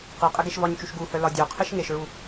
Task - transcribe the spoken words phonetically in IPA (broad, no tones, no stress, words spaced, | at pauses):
qi qʼɘɡeʃvɒɲt͡ʃuʃ ɡuhœ lɒdʲœqʰɘʃ ŋeʃɹu